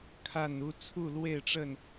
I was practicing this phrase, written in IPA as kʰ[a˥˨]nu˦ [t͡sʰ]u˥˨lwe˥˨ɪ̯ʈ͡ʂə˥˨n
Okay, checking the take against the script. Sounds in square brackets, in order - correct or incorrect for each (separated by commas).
correct, correct